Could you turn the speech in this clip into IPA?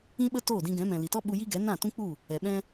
ĩ˧ɓə˧ toː˦˨dĩ˧ɡɛ̃˨˦ mɛ̃˨li˨tɔ˦ ɓu˧ ji˦ɡɛ˨˦ nã˦˨ tũ˦k͡pu˦˨ | ɛ˨ ɓɛ̃˧

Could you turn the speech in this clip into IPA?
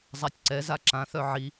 zˤatʲǀɛza ǁãθœ ʕi

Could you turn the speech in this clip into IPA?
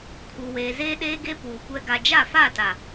kʰu˨weː˨ zeː˦ɗeː˦ɡe˦ puː˨kʷɛ˦ ɡa˨d͡ʒa˦˨fa˦˨ta˨

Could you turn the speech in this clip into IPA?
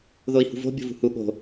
ðoi̯hṳvo̤ bʲo̤vṳhu ɠo̤

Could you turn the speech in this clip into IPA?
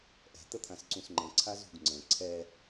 ʔɛ̤t̪ət̪ʰãsǀũs ŋ͡ǃə̃ǀʰazṳɡ ŋ͡ǀə̃ ǀʰɛ

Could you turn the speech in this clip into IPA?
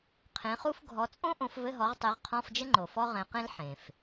qʰẽ˨˦χu˥f ɡʱɔ˨˦t͡sʼõ˥ ʔõ˨˦fvɘ˧˥˧ɦɔ˨˦ʁtˤe˨˦ʁ qʰɔ̃˧˥˧fd͡ʒɘ˥ŋ͡ǃo˩ fɔ˥ ʁɛ̃˨˦qẽ˥l ħẽ˩f

